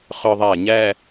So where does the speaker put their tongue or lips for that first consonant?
uvula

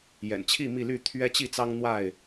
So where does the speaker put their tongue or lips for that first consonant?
palate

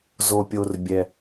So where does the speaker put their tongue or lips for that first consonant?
tongue tip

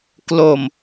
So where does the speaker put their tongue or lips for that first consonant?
velum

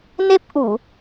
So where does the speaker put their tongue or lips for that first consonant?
tongue tip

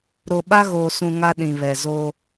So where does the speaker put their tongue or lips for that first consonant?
tongue tip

